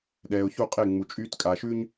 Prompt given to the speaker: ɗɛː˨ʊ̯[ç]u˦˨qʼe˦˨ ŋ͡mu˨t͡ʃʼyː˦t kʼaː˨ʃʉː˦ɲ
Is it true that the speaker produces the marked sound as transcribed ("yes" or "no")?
yes